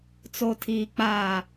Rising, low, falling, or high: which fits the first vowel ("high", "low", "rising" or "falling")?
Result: low